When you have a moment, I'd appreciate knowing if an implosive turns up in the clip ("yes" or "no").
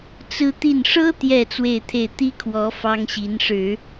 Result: no